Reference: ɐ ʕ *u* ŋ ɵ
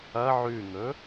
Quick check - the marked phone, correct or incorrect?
incorrect